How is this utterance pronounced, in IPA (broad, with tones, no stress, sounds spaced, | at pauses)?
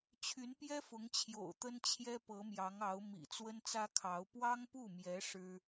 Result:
t͡ɕʰ y˧˥ n p j ɛ˥ f ʊ˧˥ ŋ t͡ɕʰ j o̰˨˩ ʊ̯ t̪ ə˥ n t͡ɕʰ j ɛ˥ p ɤ˧˥ m j ɑ˧˥ ŋ ɑ˧˥ ʊ̯ m ḭ˨˩ t͡s w ə˥ n t͡s ä˥ kʰ ɑ˧˥ ʊ̯ p w ɑ˥ ŋ p u˥˩ m j ɛ˧˥ ʂ ɻ̩˥